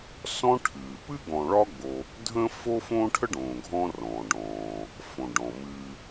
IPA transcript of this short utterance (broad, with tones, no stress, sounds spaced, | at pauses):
s ɔ̃˦ ʈʰ ɨː˩ p ɨ˥ ɡ ɔ̃˨ ɭ ɒ˦ ɡ͡b o˨ | dʱ ə̃˥ f o˥ f õː˥ ʈʰ ə˥ ɖ õː˩ ɡʱ ɔ̃˦ r ɔ̃ː˩ ɖ ɔ̃ː˩ | f õ˩ ɖ ɔ̃˩ m ɨː˨